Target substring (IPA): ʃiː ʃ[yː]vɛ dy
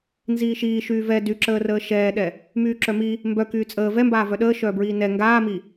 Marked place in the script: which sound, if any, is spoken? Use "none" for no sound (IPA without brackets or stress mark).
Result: yː